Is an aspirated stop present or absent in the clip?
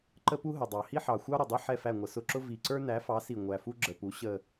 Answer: absent